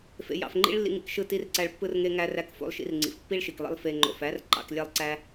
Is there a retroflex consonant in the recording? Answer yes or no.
yes